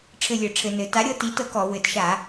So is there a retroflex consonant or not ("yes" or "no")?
yes